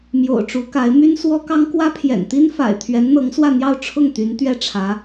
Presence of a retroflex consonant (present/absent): present